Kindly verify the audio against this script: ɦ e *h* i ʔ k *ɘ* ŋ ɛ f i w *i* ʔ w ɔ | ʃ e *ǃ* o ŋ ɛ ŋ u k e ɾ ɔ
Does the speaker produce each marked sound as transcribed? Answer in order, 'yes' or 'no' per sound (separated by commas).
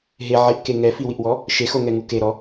no, no, yes, no